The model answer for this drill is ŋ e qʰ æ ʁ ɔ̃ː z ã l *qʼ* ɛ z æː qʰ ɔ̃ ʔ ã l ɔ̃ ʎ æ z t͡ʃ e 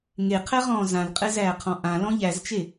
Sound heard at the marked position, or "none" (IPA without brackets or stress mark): qʼ